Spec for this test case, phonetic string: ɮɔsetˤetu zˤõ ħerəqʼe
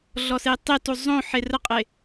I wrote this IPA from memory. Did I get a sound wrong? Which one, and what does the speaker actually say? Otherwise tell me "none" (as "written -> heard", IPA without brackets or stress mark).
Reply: none